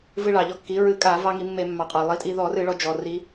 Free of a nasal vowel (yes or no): yes